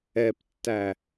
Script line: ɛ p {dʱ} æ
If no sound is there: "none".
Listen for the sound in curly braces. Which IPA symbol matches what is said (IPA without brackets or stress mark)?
tː